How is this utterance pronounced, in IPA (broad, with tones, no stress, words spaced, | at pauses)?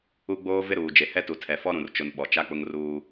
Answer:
u˦ ɡ͡boː˦vɪ˦ɾuː˨d͡ʒe˨ hɛ˦tu˨tʰɛ˨ fɔ˦ɾũ˨rt͡ʃʊ˨n ɓɔ˨t͡ʃa˦k͡pʊ˦ŋ ruː˦